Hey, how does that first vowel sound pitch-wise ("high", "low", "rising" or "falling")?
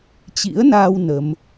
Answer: rising